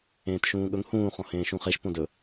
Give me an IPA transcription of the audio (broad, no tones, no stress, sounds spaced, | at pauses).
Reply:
ẽː t ʃ ũː ɠ ɵ ŋ h ũː χ ɔ̃ h ẽː ʃ ũ χ e ʃ p õ d ɵ